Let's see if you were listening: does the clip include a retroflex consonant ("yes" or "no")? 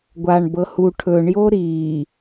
yes